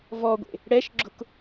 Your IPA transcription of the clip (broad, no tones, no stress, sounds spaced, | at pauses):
v ɔ ɡʷ ḛ | ɽ ɛ ʃ ɡ͡ǁ ʊ k